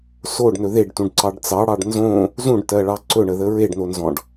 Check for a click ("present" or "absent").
present